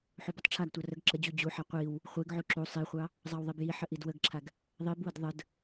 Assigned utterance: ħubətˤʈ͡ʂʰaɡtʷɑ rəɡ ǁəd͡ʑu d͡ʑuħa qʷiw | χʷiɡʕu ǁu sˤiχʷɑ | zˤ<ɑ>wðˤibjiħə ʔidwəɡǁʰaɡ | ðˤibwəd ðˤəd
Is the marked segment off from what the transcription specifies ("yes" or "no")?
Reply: no